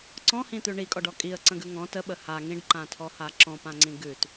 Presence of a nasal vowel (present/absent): present